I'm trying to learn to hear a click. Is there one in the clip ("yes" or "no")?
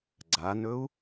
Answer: yes